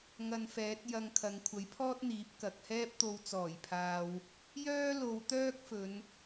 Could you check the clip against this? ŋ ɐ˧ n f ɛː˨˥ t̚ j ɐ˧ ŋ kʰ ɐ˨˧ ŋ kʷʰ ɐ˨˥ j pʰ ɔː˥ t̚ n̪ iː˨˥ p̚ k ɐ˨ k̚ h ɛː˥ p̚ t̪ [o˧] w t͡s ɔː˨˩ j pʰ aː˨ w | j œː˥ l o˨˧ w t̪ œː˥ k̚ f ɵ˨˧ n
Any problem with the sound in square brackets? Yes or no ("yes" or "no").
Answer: no